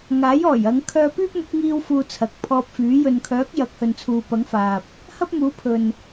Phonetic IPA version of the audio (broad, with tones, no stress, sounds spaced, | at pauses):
ŋ aː˨˥ j ɔː˨˩ j ɐ˨˧ ŋ kʰ œː˧ p yː˥ p̚ m ʊ˨˥ k̚ ŋ iː˧ w f uː˧ t͡sʰ ɐ˨ k̚ pʰ ɔː˧ p̚ f yː˨˥ j ɵ˨ n kʰ œː˨˥ k̚ j ɐ˨˥ k̚ h ɵ˨ n t͡sʰ uː˨ p ɐ˨˥ ŋ f aː˨ p̚ | h ɐ˥ p̚ m uː˨˥ pʰ ɵ˨ n